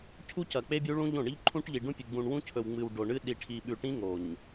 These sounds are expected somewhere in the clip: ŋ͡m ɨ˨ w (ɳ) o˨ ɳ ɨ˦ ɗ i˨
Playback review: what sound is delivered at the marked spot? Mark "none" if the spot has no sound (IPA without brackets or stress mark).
ɖ